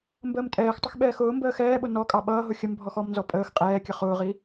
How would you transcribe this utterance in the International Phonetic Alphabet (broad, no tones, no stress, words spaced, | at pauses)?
mbəːmtʼɛːxtˤəx ɓɛːxʊːmbəː xɛːɓʊ nɔkʼɑ ɓʌːɦʊ xʲəmbʱɔx ɔmnzɔ pʼəːx qʼɛːkʲə χʊːʁi